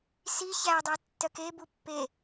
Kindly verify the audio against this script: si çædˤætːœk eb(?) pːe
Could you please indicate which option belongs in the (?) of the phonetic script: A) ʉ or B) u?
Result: B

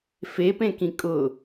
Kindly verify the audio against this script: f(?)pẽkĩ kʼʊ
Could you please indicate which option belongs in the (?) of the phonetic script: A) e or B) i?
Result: A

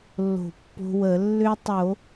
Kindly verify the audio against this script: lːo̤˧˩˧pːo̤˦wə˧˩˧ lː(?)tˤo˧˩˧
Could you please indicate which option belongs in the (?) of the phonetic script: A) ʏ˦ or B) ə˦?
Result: A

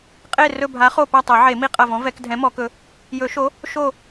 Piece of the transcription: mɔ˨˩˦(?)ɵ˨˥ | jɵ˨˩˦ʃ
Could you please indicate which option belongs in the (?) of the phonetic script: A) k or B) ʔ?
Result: A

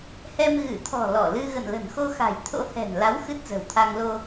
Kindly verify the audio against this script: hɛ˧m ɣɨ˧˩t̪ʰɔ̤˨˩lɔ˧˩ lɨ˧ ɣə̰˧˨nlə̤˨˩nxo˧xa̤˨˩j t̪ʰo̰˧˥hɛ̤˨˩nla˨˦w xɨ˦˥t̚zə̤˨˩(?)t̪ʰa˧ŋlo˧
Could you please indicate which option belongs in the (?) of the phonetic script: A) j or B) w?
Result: B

